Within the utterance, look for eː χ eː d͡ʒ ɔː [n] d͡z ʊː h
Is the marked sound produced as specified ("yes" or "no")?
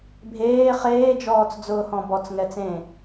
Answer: no